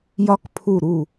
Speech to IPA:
j ɒ˦˥ k pʰ u˦˨ ɾ u˦˨

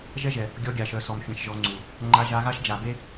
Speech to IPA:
ʒ ɛ˦ ʒ ɛ˨ | ɡʲ ɔ˧ ɡʲ a˨ ʃ œ˨ s ɔ˨ m fʲ ã˧ ʃ ʒ ɔ˧ ŋ͡ǀ u˨ | ŋ͡ǃ a˧ ʒ a˧ ɣ a˦ ʃ d͡ʒ a˨ b e˦

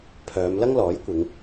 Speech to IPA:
pʰ œː˨˧ m l ɐ˥ ŋ l ɔː˨˥ j kʷ ɪ˨˧ ŋ

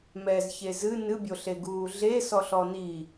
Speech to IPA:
m ɛ z ç e z ɨ n ɨ bʲ o ɬ e ɡ uː ɮ e s ɔ ɬ ɔ n i

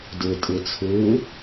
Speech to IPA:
d ɯ tʼ ɯ t͡sʰ ɯː

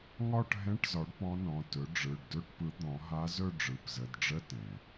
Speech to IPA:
ŋ ɒ˥˧ ʈ ɦ ɛ̃˧˥˧ ʈ z ɒ˩˥ ɖ p ɔ̃˧˥ n ɔ̃˩˧˩ t ɵ˩˥ ɖ͡ʐ ɯ˩˧˩ ɖ d ɵ˧˥˧ ʈ p ɯ˩˥ d̪ ɔ̃˩˥ ɦ a˧˥ z ɵ˥˧ ɖ͡ʐ ɯ˩˧˩ p z ə˩˧˩ d ɖ͡ʐ ə˧˥˧ t ɛ̃˩

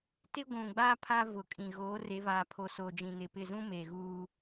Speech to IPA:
t ɪ˦ ɡʷ ũ˨ ɡ͡b aː˦ pʰ a˦ v ʊ˨ kʼ ĩ˨ ɣ oː˨˦ r e˨˦ v aː˨ pʰ o˨ s oː˨ d͡ʒ ĩ˨ n ɪ˨ p ɪ˦˨ z ũ˦ m eː˨ ɣ uː˦

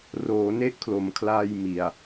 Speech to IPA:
r oː˩˦ n e˦˥ ʔ kʰ l o˩˦ m kʰ l aː˧ j m i˨˩ a̯

